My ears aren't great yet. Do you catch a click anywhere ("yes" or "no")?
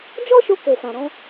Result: no